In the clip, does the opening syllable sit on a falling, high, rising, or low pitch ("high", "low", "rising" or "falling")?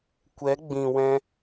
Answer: rising